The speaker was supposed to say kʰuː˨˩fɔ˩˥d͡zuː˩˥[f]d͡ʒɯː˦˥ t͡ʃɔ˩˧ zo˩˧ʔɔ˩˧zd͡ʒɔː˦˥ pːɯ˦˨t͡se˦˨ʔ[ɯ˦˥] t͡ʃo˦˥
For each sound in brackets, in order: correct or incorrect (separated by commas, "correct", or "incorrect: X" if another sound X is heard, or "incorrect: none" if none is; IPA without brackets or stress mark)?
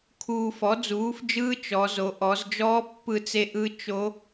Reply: correct, correct